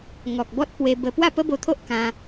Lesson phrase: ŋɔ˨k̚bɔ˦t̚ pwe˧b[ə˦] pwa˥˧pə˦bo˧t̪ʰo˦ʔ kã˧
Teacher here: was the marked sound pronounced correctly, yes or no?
no